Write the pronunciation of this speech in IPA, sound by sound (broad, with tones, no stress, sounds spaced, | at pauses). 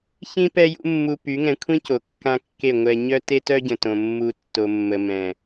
ç ĩ˦ p ɛ˦ j ṵ˦ mː u˧ p y˨˦ ŋ ɛ̃˧ kʷʰ ĩ˦ c o˨ kː ã˦ kː e˦˨ ŋʷ ɛ˧ ɲ œ˦ t e˦ t œ˦ ɟ ə̃˨ t õ˧ mː u˦ tː o˧ mː ə˧ m ɛ̃˨